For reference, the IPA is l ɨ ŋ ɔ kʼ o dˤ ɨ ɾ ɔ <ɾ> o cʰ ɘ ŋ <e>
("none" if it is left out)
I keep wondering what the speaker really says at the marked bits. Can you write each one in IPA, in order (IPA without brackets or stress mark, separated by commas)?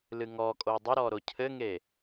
ɾ, e